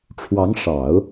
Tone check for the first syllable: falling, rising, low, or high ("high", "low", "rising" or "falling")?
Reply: rising